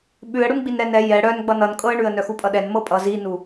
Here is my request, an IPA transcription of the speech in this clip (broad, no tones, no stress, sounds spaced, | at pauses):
ɓ ʉ ə̯ ɽ u n ɡ͡b i n ɾ ɛ n ɛ j ɛ ɽ œ n ɡ͡b ʌ n ʌ n kʼ ɤ ə̯ ɳ ʉ ə̯ n œ x u pʼ ʌ ɗ ɛ n m ɤ pʼ ʌ z i n u